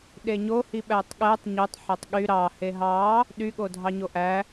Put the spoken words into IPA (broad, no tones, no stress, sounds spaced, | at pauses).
ɗ e ɲ o h i ɓ æ tˤ ɠ æ tˤ ɲ o tˤ ħ æ tˤ ɠ y ɾ ɑ h e ɦ ɑ | ɗ y ɠ o dʱ ɑ ɲ o ʔ æ